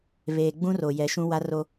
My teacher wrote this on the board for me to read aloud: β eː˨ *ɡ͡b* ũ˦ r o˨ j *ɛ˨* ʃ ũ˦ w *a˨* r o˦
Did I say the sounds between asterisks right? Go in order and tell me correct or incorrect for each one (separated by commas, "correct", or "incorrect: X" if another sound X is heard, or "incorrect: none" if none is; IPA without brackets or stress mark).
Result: correct, correct, incorrect: a˦